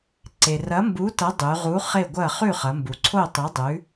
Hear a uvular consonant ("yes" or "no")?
yes